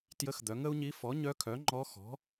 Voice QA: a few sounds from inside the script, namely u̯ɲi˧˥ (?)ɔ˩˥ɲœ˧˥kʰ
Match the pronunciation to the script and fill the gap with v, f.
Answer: f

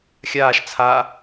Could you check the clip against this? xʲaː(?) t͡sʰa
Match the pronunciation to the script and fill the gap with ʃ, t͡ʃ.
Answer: ʃ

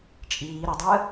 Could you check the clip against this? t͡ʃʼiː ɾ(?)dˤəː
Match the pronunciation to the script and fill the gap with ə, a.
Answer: ə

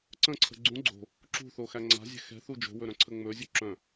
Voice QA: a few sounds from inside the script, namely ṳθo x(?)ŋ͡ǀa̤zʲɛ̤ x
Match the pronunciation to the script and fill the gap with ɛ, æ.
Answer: æ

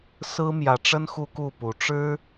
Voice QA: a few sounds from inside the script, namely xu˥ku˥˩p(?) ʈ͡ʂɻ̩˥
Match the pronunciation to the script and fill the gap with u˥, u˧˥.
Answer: u˧˥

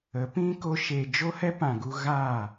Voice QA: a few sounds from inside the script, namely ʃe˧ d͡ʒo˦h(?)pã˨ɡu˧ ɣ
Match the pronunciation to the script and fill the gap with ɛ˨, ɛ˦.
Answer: ɛ˦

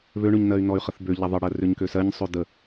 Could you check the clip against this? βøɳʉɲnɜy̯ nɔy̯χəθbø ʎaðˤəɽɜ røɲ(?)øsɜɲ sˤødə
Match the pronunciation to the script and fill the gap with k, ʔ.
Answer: k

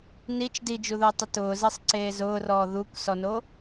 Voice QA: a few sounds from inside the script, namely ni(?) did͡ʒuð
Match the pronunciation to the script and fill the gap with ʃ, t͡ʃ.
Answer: t͡ʃ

